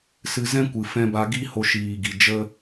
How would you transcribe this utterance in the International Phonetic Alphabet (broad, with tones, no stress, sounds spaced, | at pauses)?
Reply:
s ɨ˧ z ɛ̃˦ kʷ ɨ˨ f ɛ̃˧ b a˧ ɡ i˦ h o˧ ʃ iː˨ ɡ i˨ d͡ʒ ə˧